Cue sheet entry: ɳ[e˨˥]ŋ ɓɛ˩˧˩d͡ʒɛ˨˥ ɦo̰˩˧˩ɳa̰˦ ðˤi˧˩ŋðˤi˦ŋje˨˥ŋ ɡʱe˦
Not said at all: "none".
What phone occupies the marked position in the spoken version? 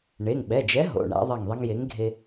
e˩˧˩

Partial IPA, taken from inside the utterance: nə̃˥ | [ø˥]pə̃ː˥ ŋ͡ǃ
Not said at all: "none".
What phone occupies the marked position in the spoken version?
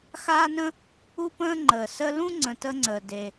u˥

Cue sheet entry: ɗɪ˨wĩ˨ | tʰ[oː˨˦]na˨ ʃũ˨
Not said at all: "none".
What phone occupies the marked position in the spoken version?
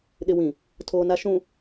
oː˨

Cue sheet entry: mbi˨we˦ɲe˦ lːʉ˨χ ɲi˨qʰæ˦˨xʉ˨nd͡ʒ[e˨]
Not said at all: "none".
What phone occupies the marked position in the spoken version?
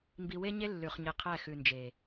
e˨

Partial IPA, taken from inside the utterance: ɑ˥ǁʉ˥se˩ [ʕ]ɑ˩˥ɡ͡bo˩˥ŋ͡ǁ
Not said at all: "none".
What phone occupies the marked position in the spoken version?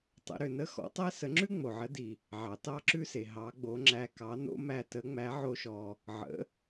ɦ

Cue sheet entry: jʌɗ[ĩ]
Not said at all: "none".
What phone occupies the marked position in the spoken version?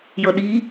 i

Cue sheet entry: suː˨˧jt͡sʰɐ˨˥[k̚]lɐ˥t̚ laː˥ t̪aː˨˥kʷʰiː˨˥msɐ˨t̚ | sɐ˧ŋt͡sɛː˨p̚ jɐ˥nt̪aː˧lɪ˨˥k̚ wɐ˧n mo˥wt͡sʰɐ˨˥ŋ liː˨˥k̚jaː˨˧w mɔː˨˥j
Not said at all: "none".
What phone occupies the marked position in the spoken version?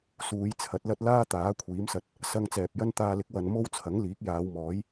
t̚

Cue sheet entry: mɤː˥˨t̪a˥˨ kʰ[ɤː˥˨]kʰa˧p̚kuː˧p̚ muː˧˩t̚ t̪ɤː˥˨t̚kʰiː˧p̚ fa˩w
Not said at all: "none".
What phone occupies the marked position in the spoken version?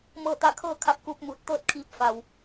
ɤː˥˨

